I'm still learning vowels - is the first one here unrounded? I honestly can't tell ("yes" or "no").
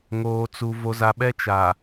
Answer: no